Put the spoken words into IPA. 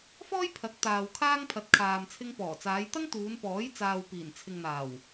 f ɔː˥ j pʰ ɐ˨˥ k̚ t̪ aː˨ w kʰ aː˥ ŋ pʰ ɐ˨˥ t̚ kʰ aː˨ m t͡sʰ ɪ˧ ŋ p ɔː˨˩ t͡s aː˨˧ j t̪ ɐ˥ ŋ t̪ uː˨˧ n p ɔː˨˥ j t͡s aː˨ w p iː˨˩ n t͡sʰ ɪ˨ ŋ n̪ aː˨˩ w

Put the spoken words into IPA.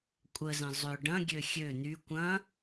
kʷʼ ə z ə̃ zˤ ʏ ɖ ɐ̃ ɡʲ ø xʲ ø n̪ y kʷ ɐ̃

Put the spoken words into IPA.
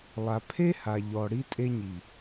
lˠ a˨ pʰ e˦ h a˨ ʎ ɔ˨ ɽ i˧ tʼ e˧ ɲ i˨

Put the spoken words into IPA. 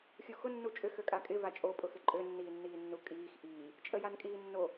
xʲ u x ʊ nː u t͡ʃʼ ʏ x ø kʼ a kʼ ɪ v a t͡ʃʼ o pʼ ʊ x ɪ ǃʼ ø nː iː nː iː nː u kʼ iː x ʔ iː | t͡ʃʼ ə j a n kʼ iː nː o

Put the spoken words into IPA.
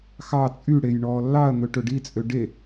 x ɑ t͡sʼ y ɽ e j ɳ ɔː lː ɑ ɐ̯ n̪ ɵ ʈ ɵ ɖ i t͡sʼ ø ɖ e

